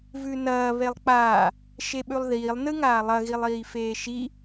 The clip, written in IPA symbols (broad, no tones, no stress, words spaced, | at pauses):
vʉnɐː βelˠk͡paː | ʃeɓʉlˠðiːlˠ nɨŋaːlˠɐ ɣilˠiːfeːʃi